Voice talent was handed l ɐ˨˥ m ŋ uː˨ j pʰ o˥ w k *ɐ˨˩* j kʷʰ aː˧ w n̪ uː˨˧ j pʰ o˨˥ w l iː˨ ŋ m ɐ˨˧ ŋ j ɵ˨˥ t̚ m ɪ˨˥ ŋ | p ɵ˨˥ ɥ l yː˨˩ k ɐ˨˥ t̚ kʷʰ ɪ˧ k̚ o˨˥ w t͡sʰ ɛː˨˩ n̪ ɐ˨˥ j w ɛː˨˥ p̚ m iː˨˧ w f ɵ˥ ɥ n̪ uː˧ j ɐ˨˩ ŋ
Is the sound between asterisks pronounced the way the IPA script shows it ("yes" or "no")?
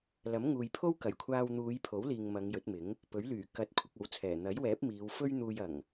yes